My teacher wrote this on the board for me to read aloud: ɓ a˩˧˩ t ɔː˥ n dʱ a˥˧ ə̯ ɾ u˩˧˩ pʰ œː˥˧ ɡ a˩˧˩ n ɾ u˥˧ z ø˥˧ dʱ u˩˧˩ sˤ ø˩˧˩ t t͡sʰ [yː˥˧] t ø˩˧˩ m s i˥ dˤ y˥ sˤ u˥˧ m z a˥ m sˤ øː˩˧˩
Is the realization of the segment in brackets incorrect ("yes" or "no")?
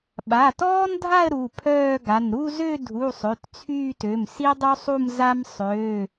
no